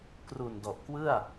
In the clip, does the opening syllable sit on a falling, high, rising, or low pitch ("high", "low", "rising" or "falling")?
low